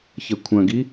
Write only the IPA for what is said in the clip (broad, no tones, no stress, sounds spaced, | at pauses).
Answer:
ç ɐ kʷʰ ɐ̃ ɡ i